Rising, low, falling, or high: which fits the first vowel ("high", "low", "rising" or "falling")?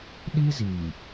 high